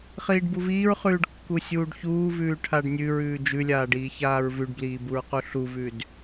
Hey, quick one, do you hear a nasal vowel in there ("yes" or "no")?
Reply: no